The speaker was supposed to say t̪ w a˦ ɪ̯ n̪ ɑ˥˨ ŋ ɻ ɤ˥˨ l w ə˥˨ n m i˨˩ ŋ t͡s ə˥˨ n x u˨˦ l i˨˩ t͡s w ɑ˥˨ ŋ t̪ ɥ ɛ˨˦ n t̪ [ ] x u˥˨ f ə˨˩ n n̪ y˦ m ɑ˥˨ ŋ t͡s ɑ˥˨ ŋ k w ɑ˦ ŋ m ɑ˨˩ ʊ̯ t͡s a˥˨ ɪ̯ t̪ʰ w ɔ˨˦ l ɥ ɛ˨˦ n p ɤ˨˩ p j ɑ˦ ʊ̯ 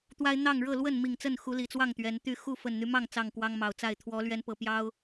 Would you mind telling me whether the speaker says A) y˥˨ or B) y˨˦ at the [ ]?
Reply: A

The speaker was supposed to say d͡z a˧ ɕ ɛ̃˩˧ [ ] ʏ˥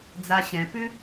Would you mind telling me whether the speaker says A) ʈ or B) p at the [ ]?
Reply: B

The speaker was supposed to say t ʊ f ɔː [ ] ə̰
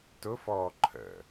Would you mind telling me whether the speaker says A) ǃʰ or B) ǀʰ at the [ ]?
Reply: A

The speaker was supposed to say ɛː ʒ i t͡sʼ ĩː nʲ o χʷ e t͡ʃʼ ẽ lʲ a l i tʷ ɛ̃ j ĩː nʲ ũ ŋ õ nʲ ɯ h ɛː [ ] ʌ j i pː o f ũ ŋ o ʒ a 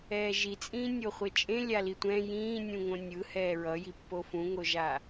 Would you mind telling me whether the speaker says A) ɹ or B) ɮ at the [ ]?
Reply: A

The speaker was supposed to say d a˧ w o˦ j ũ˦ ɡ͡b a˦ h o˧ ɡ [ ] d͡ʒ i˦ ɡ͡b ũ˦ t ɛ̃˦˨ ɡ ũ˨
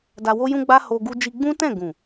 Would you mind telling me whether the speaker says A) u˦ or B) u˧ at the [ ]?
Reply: A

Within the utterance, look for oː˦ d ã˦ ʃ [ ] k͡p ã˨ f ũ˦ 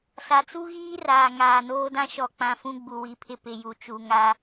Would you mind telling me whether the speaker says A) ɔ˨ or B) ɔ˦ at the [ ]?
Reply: A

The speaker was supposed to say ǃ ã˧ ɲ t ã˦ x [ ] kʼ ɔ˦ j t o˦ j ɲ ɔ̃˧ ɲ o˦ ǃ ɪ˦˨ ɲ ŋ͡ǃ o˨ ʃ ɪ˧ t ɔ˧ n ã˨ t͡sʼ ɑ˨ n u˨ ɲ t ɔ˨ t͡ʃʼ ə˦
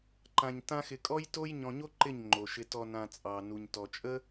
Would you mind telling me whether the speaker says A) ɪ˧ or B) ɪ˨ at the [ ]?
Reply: A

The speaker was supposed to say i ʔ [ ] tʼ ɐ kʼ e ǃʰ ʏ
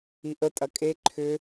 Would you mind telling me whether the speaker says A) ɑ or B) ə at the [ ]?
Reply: B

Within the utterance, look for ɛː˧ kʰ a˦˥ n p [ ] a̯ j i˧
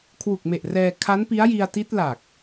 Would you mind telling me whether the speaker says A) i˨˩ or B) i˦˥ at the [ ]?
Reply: B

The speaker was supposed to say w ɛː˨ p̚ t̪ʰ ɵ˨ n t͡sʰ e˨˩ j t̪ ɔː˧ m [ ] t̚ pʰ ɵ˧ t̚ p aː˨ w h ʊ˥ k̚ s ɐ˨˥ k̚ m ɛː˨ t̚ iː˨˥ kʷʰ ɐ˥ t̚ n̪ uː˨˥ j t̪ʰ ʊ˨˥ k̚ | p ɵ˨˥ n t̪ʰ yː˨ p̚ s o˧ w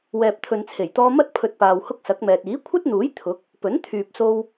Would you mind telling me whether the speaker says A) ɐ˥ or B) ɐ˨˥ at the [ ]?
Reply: A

